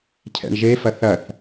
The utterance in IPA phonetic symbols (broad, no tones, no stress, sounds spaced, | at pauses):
cʰ ɛ̰ ɳ ʒ e f ɐ θ ɐ θ